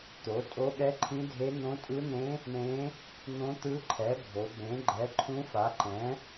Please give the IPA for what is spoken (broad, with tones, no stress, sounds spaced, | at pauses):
t̪ o˩˥ tʼ o˧˥ ɠ ɛ˧˥ ǃʰ ĩ˧˥ dʱ e˧˥ n̪ õ˧˥ tʼ ɯ˧˥ n̪ ẽ˧˥ | ɳ ẽ˧˥ | n̪ õ˧˥ t̪ ɯ˧˥ ǃʰ ɛ˩˥ bʱ o˩˥ b ẽ˩˥ ɡ͡ǃ ɛ˩˥ ǃʰ ũ˧˥ f a˩˥ ǃ ɛ̃˩˥